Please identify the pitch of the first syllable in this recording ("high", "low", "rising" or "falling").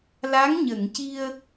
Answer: rising